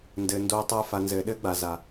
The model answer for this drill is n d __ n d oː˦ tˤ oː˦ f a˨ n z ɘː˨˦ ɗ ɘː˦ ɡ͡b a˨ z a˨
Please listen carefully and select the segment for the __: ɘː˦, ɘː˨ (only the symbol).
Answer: ɘː˨